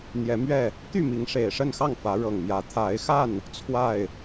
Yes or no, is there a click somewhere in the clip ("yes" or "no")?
no